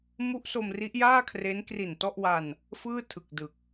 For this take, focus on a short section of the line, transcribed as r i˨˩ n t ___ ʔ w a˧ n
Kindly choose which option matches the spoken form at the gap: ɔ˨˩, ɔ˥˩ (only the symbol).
ɔ˥˩